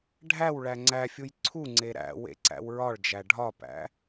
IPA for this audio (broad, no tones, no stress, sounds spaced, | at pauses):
ɖʱ æ w ɭ æ ŋ͡ǀ æ fʲ u j ǀʰ u ŋ͡ǀ e ɾ æ̰ w ḛ ǀ æ̰ w ɹ ɒ ɭ d͡ʒ æ ɖʱ ɒ p æ̰